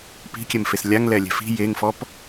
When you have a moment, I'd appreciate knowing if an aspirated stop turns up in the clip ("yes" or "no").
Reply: no